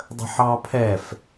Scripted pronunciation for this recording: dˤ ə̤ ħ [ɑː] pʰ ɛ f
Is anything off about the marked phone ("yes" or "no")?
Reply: no